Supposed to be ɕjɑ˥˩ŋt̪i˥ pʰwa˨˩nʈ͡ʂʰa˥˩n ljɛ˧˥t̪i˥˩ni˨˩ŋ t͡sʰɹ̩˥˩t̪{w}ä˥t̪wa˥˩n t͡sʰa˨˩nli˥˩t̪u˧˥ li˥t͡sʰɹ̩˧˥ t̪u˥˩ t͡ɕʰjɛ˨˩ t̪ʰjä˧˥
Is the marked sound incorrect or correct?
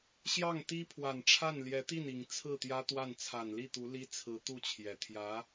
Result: incorrect